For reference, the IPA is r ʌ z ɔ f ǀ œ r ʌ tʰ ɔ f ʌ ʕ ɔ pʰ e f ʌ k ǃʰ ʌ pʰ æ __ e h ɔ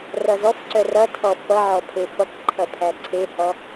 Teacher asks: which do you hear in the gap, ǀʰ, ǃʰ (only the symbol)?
ǀʰ